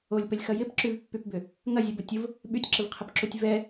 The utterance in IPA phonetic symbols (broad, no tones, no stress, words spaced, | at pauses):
olʲpəlʲxɐ jɪpǁyvpːypbʏ | ŋɐzʲobətʲʊv | ɓytʲǁɪvqʰəpǁutʲ vɛ